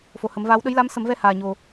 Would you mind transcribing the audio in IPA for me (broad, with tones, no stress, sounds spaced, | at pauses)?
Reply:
f o˨˩ h ə˨˩˦ m v aː˧˥ w ɗ ə˧˥ j l a˧˥ m s ə˨˩˦ m v ɛ˧ h aː˨˩ ɲ o˨˩